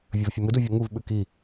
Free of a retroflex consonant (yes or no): yes